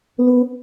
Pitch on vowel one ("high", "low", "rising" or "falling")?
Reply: high